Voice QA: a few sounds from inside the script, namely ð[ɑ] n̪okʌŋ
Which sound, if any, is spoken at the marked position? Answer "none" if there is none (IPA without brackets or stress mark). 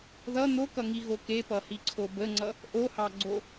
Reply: ʌ